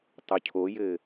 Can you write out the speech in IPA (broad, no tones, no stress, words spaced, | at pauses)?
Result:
tˤocʰojɘ